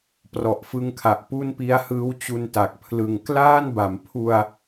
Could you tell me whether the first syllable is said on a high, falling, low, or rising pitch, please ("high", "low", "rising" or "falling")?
low